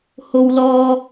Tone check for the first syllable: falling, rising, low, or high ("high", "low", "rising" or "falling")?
low